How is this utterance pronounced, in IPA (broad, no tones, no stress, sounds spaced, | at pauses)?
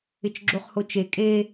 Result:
ɪ t͡ʃ ɡ͡ǁ o χ h o t͡ʃ e kʼ e